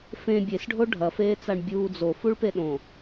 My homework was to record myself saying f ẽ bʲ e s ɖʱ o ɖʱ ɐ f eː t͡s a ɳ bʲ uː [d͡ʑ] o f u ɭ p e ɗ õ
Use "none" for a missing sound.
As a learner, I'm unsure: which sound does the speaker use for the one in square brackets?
d͡z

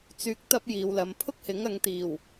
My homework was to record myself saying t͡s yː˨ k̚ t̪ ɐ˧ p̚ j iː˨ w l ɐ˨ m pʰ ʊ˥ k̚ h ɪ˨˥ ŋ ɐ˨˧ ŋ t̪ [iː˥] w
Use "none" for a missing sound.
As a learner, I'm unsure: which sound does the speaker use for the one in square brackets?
iː˨˩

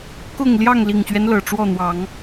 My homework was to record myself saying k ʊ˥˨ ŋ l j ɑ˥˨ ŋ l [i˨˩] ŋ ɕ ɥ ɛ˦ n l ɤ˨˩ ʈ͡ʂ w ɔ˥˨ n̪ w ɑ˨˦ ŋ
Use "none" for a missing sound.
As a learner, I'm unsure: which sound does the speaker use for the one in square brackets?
i˨˩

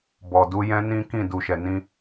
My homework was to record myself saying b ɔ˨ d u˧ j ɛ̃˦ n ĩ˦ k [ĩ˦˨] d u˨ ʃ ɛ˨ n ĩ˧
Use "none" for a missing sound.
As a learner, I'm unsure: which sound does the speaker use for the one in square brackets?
ĩ˦˨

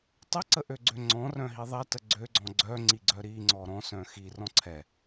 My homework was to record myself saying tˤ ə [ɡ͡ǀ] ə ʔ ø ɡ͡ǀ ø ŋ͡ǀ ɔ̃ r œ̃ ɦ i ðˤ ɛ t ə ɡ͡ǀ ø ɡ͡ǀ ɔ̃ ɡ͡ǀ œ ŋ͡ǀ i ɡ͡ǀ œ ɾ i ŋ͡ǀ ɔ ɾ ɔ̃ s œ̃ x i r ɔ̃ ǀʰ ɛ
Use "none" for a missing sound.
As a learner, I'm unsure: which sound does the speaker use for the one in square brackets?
ǀ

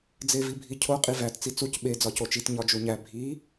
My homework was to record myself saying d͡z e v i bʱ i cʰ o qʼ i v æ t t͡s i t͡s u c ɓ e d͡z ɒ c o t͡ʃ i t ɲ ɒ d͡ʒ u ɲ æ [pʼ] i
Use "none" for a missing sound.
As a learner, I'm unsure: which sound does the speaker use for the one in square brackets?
bʱ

